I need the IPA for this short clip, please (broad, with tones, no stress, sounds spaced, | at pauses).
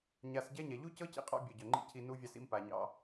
ɲ a˧ s ɟ ɛ˦ ɲ ɛ˨ ʎ u˦ c ɤ˦ c ḭ˧ qʼ ɑ̰˧ bʲ o˨ ɟ œ˨ ŋ͡ǃ ḭ˧ cʰ i˧ n u˧ vʲ ɑ˧ s ḭ˧ m p a˨ ɲ ɑ̰˧